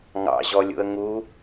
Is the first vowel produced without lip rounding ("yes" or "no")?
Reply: yes